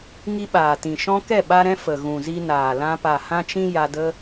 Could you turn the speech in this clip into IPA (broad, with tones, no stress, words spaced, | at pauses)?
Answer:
ŋi˧ɓaː˨tĩ˨ ʃɔ̃˦ kɛ˦˨ɓa˧ɾɛ̃˧ fə˨ɣũ˨ zi˧naː˨lã˧ pa˨hã˧t͡ʃĩ˧ ja˧də˦